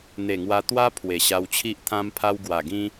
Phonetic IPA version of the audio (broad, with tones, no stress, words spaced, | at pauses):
n̪e˨˩ŋwa˧t̪wa˦ pʰwe˨˩ɕa˧wt͡ɕʰi˦ʔ t̪ʰã˦mpʰa˦w ɡwa˨˩ɡĩ˦